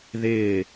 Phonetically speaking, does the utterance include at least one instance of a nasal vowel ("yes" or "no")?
no